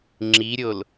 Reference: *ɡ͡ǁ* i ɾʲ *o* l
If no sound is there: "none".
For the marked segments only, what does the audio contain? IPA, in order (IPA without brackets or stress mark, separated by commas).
ŋ͡ǁ, o